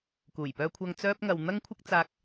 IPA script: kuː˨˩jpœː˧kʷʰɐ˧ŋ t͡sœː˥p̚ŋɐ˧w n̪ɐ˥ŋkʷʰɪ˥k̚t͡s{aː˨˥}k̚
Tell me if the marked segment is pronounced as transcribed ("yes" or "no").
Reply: no